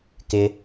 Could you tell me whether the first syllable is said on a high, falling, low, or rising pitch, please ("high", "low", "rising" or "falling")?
high